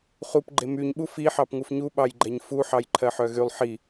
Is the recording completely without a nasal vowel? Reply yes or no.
yes